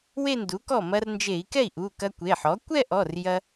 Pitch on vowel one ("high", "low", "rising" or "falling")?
falling